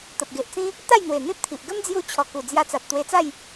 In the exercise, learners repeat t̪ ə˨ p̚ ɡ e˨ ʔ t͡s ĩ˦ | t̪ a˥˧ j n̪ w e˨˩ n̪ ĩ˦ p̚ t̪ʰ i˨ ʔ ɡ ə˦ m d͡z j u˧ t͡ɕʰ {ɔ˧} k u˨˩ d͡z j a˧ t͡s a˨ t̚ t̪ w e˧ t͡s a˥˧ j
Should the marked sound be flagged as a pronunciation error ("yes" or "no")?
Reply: yes